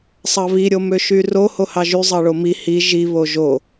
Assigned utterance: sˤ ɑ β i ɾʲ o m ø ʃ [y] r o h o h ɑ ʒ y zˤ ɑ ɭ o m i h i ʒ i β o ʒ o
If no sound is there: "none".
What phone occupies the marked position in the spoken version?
y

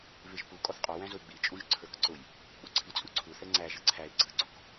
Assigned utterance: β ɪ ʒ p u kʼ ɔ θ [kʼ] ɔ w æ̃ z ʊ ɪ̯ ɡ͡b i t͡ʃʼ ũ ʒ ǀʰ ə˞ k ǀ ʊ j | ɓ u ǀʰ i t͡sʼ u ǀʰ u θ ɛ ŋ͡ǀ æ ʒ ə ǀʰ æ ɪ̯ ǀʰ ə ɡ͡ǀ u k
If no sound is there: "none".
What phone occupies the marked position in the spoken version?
qʼ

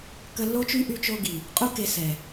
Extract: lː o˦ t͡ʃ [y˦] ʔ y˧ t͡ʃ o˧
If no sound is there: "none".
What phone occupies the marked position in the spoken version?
y˦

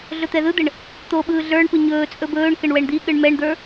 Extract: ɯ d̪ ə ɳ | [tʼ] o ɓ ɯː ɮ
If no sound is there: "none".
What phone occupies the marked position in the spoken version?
t̪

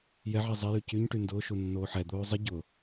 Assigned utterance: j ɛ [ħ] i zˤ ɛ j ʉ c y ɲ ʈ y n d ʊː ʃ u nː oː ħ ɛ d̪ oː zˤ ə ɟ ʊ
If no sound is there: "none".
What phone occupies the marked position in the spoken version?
ʕ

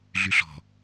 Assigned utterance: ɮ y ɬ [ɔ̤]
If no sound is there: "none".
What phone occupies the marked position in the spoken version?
ɔ̤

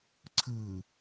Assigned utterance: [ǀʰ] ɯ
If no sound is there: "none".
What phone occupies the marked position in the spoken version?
ǀʰ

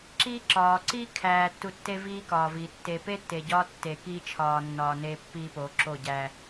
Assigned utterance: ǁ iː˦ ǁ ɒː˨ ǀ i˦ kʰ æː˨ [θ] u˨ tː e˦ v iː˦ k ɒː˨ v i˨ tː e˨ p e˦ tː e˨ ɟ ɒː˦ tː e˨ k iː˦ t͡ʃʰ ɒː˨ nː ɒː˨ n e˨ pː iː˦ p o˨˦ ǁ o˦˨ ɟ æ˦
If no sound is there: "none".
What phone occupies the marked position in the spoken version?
tː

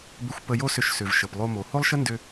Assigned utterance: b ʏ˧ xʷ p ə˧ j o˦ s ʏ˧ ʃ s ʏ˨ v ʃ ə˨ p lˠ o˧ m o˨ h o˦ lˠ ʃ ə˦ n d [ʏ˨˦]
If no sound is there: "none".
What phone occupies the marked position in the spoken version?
ʏ˧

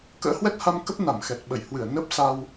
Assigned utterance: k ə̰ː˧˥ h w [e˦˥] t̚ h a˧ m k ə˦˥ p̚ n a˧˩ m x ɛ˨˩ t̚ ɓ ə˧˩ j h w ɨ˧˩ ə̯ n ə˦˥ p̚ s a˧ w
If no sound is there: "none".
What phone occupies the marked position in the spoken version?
ɛ˦˥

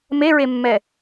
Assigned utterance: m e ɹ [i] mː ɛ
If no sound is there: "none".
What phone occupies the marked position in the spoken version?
e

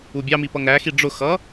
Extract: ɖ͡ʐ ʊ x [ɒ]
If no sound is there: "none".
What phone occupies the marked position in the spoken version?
ʌ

